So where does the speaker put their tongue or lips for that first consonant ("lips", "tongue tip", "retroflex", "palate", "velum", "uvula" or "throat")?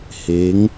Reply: throat